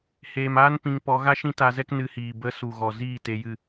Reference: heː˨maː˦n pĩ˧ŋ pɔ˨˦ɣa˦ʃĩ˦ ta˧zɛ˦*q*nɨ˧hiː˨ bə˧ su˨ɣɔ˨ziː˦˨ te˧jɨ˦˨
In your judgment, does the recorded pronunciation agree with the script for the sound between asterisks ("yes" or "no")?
no